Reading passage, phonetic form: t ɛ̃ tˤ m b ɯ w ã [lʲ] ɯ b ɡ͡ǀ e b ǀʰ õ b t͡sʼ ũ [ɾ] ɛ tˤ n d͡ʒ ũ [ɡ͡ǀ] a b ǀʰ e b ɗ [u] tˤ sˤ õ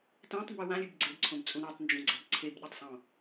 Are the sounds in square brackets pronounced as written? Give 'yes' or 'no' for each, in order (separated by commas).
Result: yes, yes, yes, yes